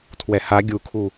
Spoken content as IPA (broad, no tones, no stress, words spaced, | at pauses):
tʰwɛha ɡʲukʰu